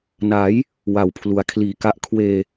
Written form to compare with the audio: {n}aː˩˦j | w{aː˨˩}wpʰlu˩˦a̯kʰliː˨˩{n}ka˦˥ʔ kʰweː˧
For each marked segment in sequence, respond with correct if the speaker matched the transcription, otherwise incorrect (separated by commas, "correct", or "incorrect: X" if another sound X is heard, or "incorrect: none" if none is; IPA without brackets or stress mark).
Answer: correct, incorrect: a˨˩, incorrect: none